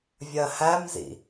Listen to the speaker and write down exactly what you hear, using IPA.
vʲ ɜ h æ m z ḭ

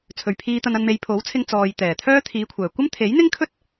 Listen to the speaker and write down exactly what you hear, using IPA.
t͡sʰ ɵ˨ ɥ pʰ iː˧ t̪ ɐ˧ n ɐ˧ n m e˨˧ j pʰ o˨˥ w t͡sʰ ɪ˧ ŋ t͡s ɔː˨ j t̪ ɛː˨˩ t̪ʰ œː˥ t̪ʰ iː˨˧ kʷʰ œː˨˩ kʷ ɐ˥ m t̪ʰ e˨˥ j n̪ ɪ˥ ŋ kʰ ɵ˥ t̚

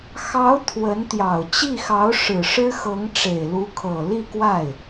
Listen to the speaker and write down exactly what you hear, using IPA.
x ɑ˧˥ ʊ̯ t̪ʰ w ə˧˥ n t̪ j ɑ˨˩ ʊ̯ t͡ɕ i˥˩ x ɑ˧˥ ʊ̯ ʂ ɻ̩˨˩ ʂ ɻ̩˥ x ɤ˧˥ ŋ ʈ͡ʂ e˨˩ ɪ̯ l u˧˥ kʰ ɤ˨˩ l i˥˧ k w a˥˩ ɪ̯

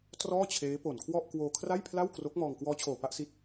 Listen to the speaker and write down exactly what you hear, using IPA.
t r ɔː˥˩ t͡ɕʰ eː˦˥ p o˨˩ n kʰ w ɔ˥˩ ʔ k w oː˧ kʰ r a˥˩ j pʰ l a˥˩ w k r o˦˥ k̚ m ɔː˧ ŋ k w ɔː˦˥ t͡ɕʰ oː˨˩ p a˥˩ ʔ s i˦˥ t̚

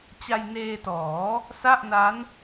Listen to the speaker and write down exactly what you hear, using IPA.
t͡ɕ a˧ j n eː˧ t ɔː˩˦ | s a˥˩ ʔ n a˦˥ n

